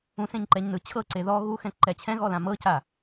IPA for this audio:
ũ s ẽ ɲ ǃ ɛ ɲ n ɯ t͡ɕʰ ɤ ǀ e ð ɔ ɣ u x ɛ̃ ǃ ɛ t͡ɕʰ ɛ̃ ɣ ɔ l ã m ɤ c a

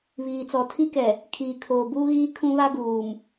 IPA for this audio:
β iː˨ t͡s ɔ˨ tʰ i˦ k ɛ˨ | kʰ iː˨ kʰ oː˨ b uː˦ ɣ iː˦ kʰ ũ˦ β a˦ ɡ uː˨ m

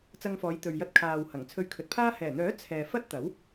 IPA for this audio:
t͡s ɐ˧ ŋ f ɔː˨˧ j t̪ ɵ˨ ɥ j ɐ˧ t̚ kʰ aː˨ w h ɐ˨˩ ŋ t͡sʰ ɵ˧ ɥ kʰ ɵ˨ t̚ pʰ aː˥ h ɛː˨˩ n̪ œː˨˥ t͡sʰ ɛː˨ f ɐ˥ t̚ t̪ ɐ˨˥ w

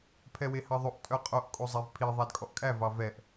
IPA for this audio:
pʰ ɛ w e h ɑ ðˤ o ʔ tʼ œ qʼ o ʔ kʼ o zˤ ɛ v pʰ i ðˤ æ d kʼ ɔ ʔ kʼ æ v ɑ v ɛ ʔ

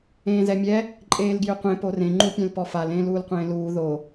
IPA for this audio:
ẽː z ɛ mʲ ɛ | ǃʼ eː l ɡ j ʏ qʷ ẽ p o r ẽ ŋ͡ǃ u pʲ ẽ l p ɔ f a l ẽː l uː l qʷ ẽː l uː ð o

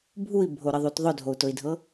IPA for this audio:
bʱ u i̯ bʱ o ɾ ə ðˤ u t ðˤ ʊ dʱ o u̯ t ʊ i̯ dʱ ɤ

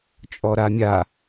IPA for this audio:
t͡ʃʼ ɔ ɾ a mʲ a

